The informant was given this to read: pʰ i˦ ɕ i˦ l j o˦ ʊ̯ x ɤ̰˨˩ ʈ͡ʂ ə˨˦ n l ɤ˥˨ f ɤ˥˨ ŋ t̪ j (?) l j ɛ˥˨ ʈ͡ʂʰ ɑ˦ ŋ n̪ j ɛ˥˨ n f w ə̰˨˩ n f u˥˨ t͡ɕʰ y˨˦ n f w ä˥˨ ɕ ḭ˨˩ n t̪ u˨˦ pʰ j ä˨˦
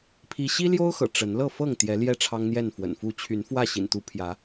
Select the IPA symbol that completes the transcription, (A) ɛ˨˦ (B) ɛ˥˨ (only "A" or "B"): A